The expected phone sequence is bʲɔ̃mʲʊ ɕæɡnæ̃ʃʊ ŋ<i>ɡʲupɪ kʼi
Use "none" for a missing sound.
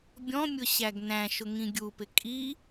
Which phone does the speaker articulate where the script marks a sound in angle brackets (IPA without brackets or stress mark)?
ĩ